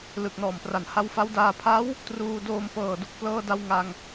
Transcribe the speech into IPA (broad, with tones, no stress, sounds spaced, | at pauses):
l ɯ˨˩ k̚ n ɔː˨˩ m p r a˨˩ n h a˧ w f a˦˥ w d aː˧ pʰ a˦˥ w | t r uː˧ d oː˧ m p ɤː˨˩ d u˨˩ k̚ p l ɤː˧ d a˧ w ŋ a˧ ŋ